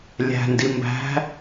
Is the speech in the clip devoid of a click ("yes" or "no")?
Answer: yes